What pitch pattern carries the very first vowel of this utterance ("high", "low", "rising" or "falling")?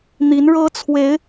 rising